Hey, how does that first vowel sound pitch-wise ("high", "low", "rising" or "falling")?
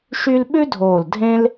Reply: high